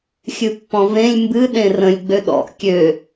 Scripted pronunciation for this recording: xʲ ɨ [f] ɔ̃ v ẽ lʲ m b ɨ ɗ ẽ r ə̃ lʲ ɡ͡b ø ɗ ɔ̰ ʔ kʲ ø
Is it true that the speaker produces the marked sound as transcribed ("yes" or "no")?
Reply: no